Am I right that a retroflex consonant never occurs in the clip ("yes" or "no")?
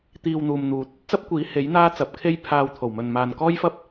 yes